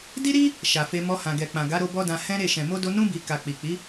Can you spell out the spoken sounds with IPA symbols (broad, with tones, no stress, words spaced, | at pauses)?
di˦ɾi˦ | ʃa˨fe˧ mɔ˧hã˨ ɡɛ˨k͡pã˨ ɡa˨˦ɾo˧ bɔ˦dã˧ hɛ̃˦ɾe˦˨ ʃɛ̃˨mo˧ do˦ nũ˦ bi˧ ka˨ k͡pi˨k͡pi˨˦